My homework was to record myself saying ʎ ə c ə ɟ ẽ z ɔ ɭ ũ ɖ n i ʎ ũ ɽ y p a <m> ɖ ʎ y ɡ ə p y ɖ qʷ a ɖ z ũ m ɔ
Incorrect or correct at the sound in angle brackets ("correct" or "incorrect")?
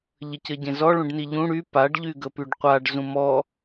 incorrect